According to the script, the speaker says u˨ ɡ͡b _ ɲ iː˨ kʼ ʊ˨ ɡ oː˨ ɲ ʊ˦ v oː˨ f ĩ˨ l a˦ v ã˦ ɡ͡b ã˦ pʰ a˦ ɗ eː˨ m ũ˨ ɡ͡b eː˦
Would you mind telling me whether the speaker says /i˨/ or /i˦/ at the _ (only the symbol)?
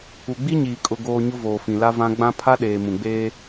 i˦